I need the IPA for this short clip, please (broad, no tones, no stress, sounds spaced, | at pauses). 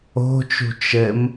o̤ t͡ʃ ṳ t͡ʃ ɘ m